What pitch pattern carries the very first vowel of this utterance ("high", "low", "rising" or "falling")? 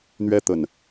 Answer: high